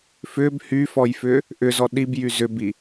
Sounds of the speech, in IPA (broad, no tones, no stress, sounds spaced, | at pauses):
f ʏ b h y f ɔ j f ʏ | ʔ ʏ z ɔ ɗ i b j y z ʏ b i